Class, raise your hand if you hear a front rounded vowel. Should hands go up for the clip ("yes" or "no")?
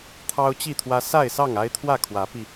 no